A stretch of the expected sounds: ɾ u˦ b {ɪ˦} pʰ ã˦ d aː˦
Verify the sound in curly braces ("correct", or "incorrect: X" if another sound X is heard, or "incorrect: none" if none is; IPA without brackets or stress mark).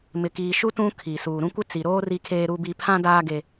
incorrect: i˦